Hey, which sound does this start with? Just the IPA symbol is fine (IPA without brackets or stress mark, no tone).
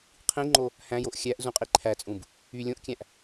qʰ